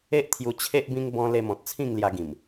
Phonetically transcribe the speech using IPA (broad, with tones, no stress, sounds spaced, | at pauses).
e˦ ʔ t̪ʰ j u˧ t͡ɕʰ e˦ ʔ b ĩ˦ ŋ b ɔ̃˧ l e˧ m ɔ̃˨ t̚ t͡sʰ ĩ˥˧ ŋ l j a˧ ɡ ĩ˨˩ m